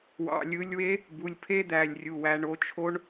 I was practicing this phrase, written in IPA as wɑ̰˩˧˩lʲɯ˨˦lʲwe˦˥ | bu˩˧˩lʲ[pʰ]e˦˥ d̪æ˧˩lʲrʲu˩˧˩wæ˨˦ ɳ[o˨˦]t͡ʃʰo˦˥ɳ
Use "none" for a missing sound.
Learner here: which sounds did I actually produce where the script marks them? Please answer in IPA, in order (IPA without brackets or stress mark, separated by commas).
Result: pʰ, o˨˦